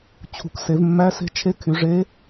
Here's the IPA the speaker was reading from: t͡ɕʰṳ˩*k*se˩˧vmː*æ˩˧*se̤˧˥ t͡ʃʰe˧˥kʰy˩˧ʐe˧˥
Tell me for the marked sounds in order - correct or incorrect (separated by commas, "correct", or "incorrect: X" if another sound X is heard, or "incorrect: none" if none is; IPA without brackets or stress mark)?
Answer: correct, incorrect: æ˧˥